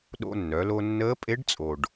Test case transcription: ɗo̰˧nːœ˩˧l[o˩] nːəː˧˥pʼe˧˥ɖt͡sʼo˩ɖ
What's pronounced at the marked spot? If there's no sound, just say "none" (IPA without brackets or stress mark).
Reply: o˧